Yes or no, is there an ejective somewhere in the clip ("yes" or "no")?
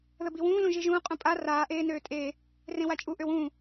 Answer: yes